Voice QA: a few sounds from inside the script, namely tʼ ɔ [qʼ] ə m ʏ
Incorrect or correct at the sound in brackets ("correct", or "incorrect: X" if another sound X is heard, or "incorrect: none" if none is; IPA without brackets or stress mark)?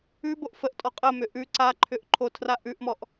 correct